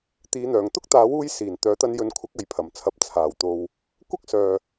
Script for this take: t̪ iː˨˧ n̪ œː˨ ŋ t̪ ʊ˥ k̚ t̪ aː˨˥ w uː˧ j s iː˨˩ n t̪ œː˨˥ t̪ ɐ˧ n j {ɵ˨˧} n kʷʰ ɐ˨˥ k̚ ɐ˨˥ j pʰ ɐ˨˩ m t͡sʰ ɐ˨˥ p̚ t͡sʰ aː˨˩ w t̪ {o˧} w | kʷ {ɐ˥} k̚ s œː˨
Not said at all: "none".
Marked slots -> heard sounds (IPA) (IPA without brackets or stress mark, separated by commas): ɵ˨˧, o˨, ɐ˥